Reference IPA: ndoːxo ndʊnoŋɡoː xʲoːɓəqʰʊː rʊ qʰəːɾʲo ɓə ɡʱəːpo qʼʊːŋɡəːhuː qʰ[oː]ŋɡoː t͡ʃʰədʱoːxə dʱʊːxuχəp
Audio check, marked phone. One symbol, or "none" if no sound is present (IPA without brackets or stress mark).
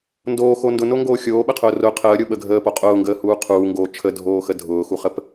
uː